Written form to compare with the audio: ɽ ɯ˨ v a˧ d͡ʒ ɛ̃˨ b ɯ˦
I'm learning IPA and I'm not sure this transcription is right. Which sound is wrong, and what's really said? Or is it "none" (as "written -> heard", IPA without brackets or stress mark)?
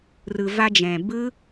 ɽ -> r